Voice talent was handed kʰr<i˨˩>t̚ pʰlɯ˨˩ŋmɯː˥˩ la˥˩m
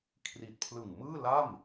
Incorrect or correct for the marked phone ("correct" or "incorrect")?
correct